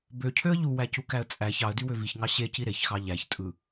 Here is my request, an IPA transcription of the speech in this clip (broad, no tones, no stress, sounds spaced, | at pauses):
b ø cʰ ø ə̯ ʎ u w æ c u k æ ə̯ t͡sʼ æ ç ɑ ə̯ d y w ø v i ç ŋ ɑ ɕ e c i ɾ e ç x ɑ ʎ æ ç tʼ ɯ